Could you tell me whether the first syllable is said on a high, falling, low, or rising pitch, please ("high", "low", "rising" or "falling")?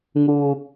low